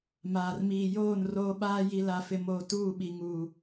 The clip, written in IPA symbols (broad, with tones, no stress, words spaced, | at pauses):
maː˨rmiː˨joː˦˨n roː˦ɓaː˦ ji˦la˦fɪ˦moː˦ tuː˦˨ɓi˨ŋuː˨